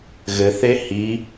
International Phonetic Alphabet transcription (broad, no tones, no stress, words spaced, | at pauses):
ɣɘθe hi